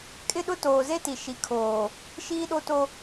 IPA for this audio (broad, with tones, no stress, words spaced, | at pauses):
kʼɪ˦ɗʊ˦ toː˨ze˦ti˨ ʃi˨ kʰoː˨ | ʃiː˦ɗo˦to˦